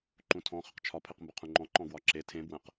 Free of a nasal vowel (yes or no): no